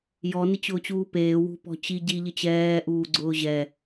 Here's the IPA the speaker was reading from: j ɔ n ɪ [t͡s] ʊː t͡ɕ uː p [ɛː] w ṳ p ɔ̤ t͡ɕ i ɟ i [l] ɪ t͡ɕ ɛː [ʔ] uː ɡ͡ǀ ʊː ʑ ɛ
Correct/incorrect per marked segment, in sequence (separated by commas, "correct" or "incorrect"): incorrect, incorrect, incorrect, correct